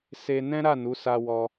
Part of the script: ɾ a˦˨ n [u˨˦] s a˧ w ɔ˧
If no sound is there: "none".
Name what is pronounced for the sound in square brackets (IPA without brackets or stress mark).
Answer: u˨˦